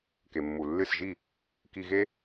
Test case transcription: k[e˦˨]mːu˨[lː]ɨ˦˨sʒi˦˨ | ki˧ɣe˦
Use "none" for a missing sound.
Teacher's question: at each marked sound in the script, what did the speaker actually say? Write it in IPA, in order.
e˨, lː

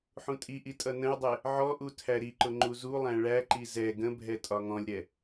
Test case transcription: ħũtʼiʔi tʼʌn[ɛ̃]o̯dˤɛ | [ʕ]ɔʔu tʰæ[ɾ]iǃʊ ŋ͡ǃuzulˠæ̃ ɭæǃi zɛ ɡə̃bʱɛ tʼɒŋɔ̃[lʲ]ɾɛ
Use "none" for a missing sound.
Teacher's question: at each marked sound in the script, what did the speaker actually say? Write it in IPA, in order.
ə̃, ʕ, ɾ, lʲ

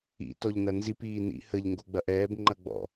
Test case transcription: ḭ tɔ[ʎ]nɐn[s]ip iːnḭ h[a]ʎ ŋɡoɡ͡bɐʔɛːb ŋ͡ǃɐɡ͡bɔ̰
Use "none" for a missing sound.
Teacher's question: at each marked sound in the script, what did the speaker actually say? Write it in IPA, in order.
ʎ, z, ə

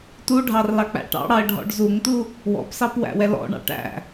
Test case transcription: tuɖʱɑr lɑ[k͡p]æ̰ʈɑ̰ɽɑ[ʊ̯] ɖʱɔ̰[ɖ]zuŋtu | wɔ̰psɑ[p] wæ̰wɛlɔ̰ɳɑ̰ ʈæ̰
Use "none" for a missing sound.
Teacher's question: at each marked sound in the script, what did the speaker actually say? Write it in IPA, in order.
k͡p, ə̯, ɖ, p

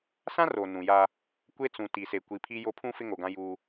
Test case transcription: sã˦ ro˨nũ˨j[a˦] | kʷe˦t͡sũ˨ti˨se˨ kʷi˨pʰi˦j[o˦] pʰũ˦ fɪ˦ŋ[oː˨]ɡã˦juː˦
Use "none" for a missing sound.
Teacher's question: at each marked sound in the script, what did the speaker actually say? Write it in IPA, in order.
a˦, o˦, o˨

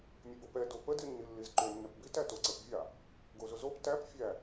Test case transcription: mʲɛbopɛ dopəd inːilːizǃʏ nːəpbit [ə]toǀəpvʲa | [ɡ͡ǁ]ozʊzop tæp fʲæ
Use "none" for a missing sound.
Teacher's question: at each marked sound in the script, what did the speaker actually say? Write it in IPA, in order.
æ, ɡ

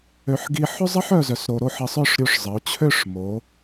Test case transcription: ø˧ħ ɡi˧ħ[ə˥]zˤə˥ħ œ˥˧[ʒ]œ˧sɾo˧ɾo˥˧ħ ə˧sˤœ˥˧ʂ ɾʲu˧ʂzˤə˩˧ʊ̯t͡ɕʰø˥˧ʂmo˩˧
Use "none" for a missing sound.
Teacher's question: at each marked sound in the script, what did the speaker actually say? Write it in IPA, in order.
ɵ˥, z

